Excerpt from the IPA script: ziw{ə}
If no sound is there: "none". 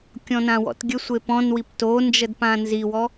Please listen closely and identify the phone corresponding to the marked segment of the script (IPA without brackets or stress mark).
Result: ɔ